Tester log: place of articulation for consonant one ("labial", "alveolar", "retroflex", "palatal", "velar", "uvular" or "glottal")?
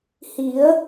glottal